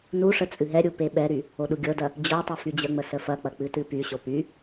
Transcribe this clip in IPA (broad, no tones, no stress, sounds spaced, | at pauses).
n u ʂ ə t͡sʼ ɨ ɦ ɛ ɾʲ u p e ɓ ɛ ɾ y | o ɗ u ɡʲ ɤ d ɐ | d͡ʑ o tˤ ɨ f y d͡ʑ ə ŋ͡m ə s ə f ɐ k͡p ɐ k͡p ɨ t ɨ p y ɕ o p y